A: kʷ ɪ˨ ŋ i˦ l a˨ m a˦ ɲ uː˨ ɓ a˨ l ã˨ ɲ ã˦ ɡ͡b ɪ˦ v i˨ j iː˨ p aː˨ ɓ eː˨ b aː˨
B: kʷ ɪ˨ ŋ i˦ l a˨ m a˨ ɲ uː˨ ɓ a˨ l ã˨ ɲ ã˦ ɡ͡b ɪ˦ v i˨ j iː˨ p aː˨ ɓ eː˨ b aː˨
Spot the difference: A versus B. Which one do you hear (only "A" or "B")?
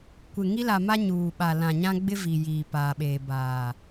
A